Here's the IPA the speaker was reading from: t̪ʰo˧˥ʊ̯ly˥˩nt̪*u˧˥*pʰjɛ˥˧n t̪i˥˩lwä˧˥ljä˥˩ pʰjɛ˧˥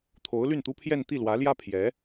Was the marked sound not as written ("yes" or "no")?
yes